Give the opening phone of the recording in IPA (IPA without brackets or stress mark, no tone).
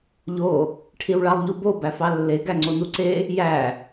ʎ